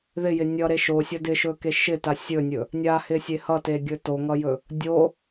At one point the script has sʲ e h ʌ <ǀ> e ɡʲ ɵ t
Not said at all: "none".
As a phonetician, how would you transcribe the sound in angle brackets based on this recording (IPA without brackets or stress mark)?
t